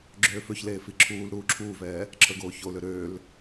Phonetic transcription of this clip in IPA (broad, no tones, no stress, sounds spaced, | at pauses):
ɡ͡ǁ øː f ø ç l eː f i ǁʰ uː l ɾ uː ǁʰ uː v ɛː | ǁʰ ə˞ ɡ oː ç o l ø ɾ øː l